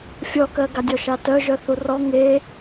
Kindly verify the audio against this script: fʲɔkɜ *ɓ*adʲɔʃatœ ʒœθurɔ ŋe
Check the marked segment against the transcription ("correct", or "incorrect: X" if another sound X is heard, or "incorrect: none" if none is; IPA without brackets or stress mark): incorrect: ɡ